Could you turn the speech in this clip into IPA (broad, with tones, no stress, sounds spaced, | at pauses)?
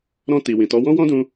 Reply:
ɾ ɔ̃˧ t i˨ w ĩ˨ t ɔ˨˦ w ɔ̃˦ w ɔ̃˦ d ũ˧